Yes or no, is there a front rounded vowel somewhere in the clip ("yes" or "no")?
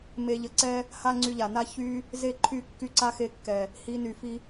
yes